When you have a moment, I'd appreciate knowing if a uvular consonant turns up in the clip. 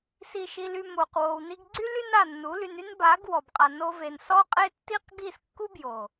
yes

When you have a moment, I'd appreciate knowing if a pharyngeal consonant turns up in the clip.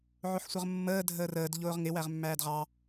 yes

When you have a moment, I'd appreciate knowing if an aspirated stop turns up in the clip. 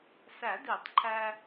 yes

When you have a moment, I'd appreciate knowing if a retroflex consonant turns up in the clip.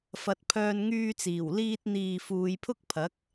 no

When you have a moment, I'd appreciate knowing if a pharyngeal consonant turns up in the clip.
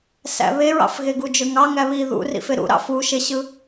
no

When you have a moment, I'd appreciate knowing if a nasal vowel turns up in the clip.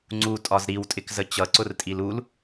no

